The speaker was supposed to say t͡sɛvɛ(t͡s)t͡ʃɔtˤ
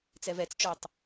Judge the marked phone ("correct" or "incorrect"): correct